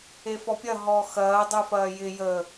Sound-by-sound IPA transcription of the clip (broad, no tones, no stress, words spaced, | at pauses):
efɔpʲɐ ɦɔxɐː dˤyfɐːjɪ jəː